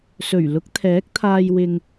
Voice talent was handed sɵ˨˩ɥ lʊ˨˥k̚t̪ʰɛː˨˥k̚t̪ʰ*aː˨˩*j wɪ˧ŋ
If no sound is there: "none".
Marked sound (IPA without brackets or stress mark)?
aː˧